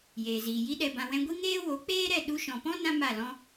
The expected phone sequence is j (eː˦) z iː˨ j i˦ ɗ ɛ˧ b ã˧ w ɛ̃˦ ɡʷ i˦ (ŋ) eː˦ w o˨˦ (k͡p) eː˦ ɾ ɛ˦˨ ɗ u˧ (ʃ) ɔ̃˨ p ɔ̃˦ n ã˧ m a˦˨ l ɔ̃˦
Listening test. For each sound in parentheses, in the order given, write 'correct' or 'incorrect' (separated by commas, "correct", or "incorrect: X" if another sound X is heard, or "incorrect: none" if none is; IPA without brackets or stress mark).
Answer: incorrect: eː˨, correct, correct, correct